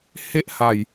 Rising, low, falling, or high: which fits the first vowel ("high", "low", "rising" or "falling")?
high